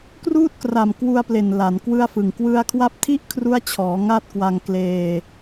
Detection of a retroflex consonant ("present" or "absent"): absent